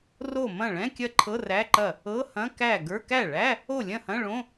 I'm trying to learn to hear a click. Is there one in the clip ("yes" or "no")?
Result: yes